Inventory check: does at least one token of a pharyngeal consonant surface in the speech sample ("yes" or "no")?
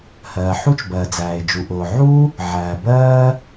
yes